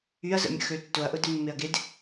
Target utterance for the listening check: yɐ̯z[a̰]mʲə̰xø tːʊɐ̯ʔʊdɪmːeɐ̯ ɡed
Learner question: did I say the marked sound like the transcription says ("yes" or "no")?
no